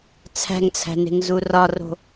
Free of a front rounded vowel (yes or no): yes